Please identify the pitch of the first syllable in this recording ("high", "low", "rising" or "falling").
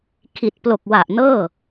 low